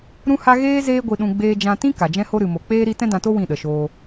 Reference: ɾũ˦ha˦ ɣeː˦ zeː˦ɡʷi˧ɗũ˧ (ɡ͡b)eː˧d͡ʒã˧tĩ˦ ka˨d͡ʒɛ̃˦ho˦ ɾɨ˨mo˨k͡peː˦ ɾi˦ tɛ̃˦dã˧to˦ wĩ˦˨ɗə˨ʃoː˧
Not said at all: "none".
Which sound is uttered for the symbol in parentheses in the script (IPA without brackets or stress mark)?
ɡ͡b